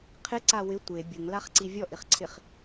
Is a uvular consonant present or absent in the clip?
present